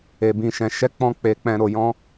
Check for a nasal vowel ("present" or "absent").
present